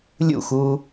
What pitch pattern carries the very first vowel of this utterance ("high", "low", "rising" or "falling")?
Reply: falling